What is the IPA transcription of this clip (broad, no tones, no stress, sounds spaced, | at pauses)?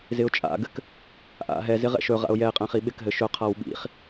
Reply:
z ɪ ʊ̯ t͡ʃʼ a̰ ɡ ɘ k | ʔ a̰ ɦ ɛ z ɪ ʁ ɛ̰ ʃ ɵ ʁ a̰ ʊ̯ j ɛ ɪ̯ qʼ ɛ̃ χ i ɓ ɪ k ɦ ɘ ʃ ɵ qʰ a w ɓ ḭ χ